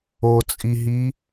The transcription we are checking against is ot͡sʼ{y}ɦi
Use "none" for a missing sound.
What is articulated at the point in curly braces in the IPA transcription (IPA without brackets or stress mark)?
i